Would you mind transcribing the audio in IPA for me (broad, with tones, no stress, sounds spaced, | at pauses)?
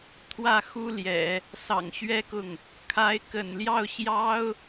t̪ʰ w ä˥˩ x u˥ l j ɛ̰˨˩˦ | s ɑ̰˨˩ ŋ ɕ ɥ ɛ˥ k ʊ˥˩ ŋ | kʰ a˧˥ ɪ̯ k ə̰˨˩ n l j ɑ˥˩ ʊ̯ ɕ j ɑ˥ ʊ̯